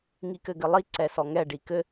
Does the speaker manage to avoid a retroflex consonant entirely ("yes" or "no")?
no